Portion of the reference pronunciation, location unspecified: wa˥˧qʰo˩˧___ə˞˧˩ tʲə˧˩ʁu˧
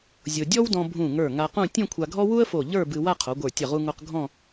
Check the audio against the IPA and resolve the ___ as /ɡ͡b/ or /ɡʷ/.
ɡʷ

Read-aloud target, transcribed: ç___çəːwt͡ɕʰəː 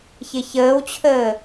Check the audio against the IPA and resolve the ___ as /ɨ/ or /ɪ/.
ɪ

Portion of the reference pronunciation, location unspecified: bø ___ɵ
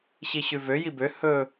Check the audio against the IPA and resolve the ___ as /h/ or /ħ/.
h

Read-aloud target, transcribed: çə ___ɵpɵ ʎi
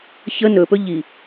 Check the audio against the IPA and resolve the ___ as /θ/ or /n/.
n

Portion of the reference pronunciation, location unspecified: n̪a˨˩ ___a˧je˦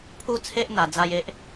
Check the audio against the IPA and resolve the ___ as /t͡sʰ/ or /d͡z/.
d͡z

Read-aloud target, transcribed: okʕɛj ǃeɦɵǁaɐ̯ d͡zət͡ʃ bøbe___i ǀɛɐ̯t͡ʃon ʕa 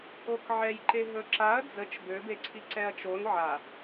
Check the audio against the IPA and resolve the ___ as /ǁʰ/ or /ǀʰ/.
ǀʰ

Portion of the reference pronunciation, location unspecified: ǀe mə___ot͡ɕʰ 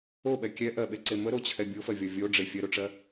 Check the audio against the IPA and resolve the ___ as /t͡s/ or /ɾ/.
ɾ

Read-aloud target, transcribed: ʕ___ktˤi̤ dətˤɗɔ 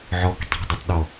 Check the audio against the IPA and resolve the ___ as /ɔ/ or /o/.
ɔ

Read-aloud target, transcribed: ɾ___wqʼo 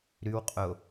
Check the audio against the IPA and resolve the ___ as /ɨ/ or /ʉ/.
ʉ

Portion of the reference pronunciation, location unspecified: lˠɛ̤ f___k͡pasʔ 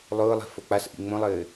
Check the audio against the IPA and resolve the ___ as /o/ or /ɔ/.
o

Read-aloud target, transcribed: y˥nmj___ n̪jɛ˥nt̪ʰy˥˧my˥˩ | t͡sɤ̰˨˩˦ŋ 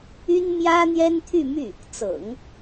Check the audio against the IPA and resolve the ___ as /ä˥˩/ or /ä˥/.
ä˥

